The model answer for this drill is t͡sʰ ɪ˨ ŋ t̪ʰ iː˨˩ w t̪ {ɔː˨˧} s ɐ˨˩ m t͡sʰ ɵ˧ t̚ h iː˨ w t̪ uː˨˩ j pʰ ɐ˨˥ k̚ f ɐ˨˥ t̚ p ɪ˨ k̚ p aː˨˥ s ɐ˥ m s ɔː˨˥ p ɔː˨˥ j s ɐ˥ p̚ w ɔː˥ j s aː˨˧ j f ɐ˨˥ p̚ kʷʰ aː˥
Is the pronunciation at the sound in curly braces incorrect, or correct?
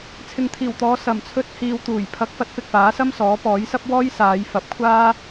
correct